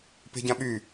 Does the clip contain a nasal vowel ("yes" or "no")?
yes